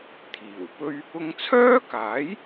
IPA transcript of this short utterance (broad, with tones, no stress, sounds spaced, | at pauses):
t̪ʰ iː˨˩ w p ɵ˥ ɥ | ʊ˧ ŋ t͡sʰ œː˥ k aː˨˥ j